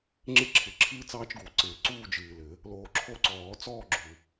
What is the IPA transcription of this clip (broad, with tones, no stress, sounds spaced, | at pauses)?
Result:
ŋ͡ǁ ɪ˦ ǁʰ ɪ˨˩˦ ǁʰ ɨː˦ t͡s ɑː˦ t͡ʃ ɡ u˨˩˦ ǀ ɪː˨ ǀ uː˦˨ d͡ʒ ɨː˨ l ɘ˨˩˦ | l oː˨ ǁʰ o˦˨ ǀ ɔː˨˩˦ t͡s ɔː˦˨ ɡ͡ǁ u˨